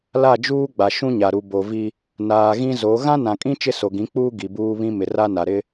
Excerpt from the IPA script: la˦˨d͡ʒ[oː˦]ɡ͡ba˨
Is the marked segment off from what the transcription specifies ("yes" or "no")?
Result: yes